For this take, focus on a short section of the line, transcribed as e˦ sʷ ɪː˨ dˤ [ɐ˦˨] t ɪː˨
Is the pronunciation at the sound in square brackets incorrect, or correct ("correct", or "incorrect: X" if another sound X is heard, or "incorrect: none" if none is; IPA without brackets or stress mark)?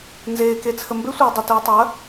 incorrect: ɐ˨